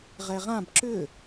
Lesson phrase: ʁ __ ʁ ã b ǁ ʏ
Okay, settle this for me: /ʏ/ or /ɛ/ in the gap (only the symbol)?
ɛ